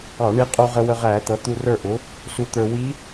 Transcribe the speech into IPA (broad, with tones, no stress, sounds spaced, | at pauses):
ɑ˧˩˧ ɳ i˧ qʼ u˧ ʁ ə˧ w ə˧ ʁ æː˧˩˧ t̪ ʌ˩˥ t̪ u˧ r ə˞˥˩ ʔ ʊ˩˥ | s u˧ t̪ ə˞˧ w i˧˥